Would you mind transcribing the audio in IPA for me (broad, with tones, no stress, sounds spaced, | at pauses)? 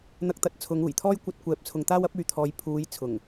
n̪ ɐ˧ k̚ t̪ ɐ˨˥ t̚ t͡sʰ ʊ˨˧ ŋ uː˨˩ j t̪ʰ ɔː˥ j kʷ ɐ˧ t̚ kʷ ɛː˨ p̚ t͡sʰ ʊ˨ ŋ t̪ aː˥ w ɐ˥ p̚ yː˨ t̪ʰ ɔː˨˧ j pʰ uː˨˧ j t͡sʰ ʊ˨˩ ŋ